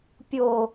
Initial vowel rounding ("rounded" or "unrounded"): rounded